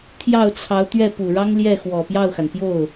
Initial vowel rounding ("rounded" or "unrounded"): unrounded